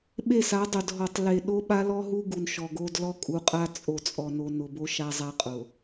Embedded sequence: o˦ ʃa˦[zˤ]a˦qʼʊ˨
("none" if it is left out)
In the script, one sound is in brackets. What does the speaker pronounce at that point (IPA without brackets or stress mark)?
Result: zˤ